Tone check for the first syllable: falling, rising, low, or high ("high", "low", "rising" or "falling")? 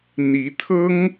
rising